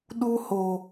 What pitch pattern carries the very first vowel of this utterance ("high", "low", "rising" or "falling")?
high